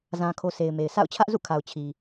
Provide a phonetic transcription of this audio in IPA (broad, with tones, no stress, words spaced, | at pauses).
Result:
zã˨kʰo˨ se˨ɪ̯me˨ɪ̯ sa̰˦˨ʊ̯ t͡ɕʰä˦ʔzṵ˦˨kʰa˨ʊ̯ t͡ɕʰi˨